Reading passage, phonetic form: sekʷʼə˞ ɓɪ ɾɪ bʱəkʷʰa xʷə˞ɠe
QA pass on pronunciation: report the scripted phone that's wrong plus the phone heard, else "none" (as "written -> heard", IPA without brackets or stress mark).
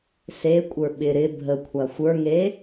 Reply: ɠ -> ŋ